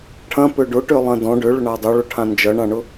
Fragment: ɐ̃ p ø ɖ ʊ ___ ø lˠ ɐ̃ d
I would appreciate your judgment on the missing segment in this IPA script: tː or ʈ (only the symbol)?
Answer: ʈ